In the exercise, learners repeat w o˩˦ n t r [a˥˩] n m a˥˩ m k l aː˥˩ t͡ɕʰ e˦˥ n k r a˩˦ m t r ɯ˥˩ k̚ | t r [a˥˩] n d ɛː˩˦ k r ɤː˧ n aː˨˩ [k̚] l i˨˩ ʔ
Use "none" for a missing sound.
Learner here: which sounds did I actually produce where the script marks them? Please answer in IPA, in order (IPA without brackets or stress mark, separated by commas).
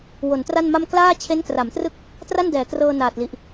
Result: a˥˩, a˥˩, t̚